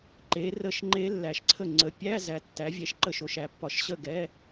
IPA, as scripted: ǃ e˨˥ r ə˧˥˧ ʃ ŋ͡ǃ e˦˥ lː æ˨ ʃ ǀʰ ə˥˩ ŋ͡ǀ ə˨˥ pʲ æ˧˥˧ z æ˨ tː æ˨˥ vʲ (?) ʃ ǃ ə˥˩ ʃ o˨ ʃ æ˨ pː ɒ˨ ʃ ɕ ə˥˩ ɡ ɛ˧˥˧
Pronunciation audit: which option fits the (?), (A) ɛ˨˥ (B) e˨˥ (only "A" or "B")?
A